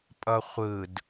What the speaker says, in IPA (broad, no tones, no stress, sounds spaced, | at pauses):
pʼ ʌ χʷ ɯ d